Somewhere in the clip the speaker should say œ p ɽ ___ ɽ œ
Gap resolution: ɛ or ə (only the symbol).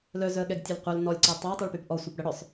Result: ə